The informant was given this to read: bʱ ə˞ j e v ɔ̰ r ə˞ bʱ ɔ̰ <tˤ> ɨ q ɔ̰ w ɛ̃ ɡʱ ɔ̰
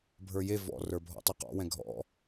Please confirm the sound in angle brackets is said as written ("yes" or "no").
yes